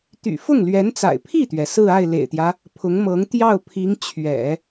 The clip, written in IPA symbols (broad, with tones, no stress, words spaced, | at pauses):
t̪y̰˨˩ fʊ˥˩ŋlɥɛ˧˥nt͡sa̰˨˩ɪ̯ pʰi˥˩t̪ɥɛ˩ sɹ̩˥˧a˥˩ɪ̯ lḛ˨˩ɪ̯t̪jä˦ | pʰʊ˧˥ŋmɤ˧˥ŋ t̪jɑ˥˩ʊ̯pʰi˧˥ŋ t͡ɕʰɥɛ̰˨˩˦